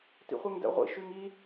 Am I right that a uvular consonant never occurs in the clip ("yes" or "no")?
no